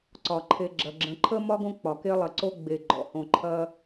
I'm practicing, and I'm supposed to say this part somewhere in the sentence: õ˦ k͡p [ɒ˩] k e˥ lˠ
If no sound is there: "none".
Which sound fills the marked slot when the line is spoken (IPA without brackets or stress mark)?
ɒ˩